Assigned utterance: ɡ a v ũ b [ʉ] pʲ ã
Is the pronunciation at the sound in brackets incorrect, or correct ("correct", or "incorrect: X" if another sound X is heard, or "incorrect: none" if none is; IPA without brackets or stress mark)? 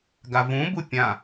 incorrect: u